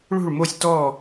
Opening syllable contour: falling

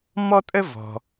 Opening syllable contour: high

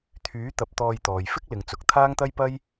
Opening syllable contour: rising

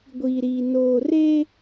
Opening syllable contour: low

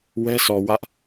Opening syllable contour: high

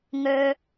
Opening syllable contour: low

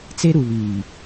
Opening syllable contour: high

